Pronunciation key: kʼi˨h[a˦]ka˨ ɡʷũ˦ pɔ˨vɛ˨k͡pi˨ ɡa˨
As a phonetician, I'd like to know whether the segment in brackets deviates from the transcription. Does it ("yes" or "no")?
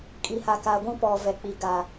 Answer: yes